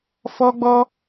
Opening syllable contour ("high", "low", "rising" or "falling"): high